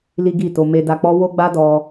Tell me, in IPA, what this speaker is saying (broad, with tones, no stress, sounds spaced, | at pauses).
l i˦ ɡ i˦˨ t o˧ m e˧ d a˧ k͡p ɔ˦ w o˦ ɡ͡b a˦ d ɔ˧